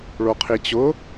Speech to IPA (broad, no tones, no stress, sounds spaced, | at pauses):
ɭ o qʰ i t͡ɕ ʊ